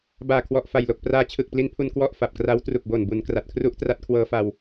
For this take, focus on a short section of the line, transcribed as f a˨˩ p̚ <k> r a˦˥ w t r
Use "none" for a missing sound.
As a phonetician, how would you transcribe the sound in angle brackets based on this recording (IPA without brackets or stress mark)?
k